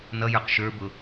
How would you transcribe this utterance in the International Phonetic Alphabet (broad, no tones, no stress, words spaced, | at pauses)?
nʌjə˞q ʃə˞bʊ